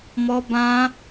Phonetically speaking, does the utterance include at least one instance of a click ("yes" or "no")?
no